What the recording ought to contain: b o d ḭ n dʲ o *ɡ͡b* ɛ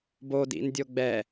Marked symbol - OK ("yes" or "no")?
yes